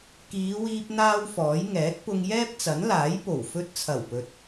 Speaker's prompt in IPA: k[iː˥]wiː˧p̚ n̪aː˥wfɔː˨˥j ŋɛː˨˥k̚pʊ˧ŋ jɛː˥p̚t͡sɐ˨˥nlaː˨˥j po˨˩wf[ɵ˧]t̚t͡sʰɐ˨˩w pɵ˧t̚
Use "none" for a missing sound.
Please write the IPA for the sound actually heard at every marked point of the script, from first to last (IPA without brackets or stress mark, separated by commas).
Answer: iː˨˧, ɵ˧